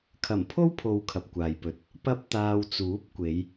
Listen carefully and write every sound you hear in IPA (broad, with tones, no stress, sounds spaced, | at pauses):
kʰ ɐ˨˩ m pʰ o˥ w pʰ o˨ w kʰ ɐ˨ p̚ kʷ aː˨ j p ɵ˧ t̚ | p ɐ˥ p̚ t̪ aː˧ w t͡s uː˨˥ p̚ kʷ e˨˧ j